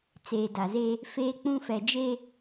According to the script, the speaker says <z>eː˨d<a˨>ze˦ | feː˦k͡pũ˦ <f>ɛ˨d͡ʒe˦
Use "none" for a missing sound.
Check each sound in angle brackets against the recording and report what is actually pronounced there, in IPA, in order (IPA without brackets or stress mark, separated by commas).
t͡s, a˨, f